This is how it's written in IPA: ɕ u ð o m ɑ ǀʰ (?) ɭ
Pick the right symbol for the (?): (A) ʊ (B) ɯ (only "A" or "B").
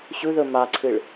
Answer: B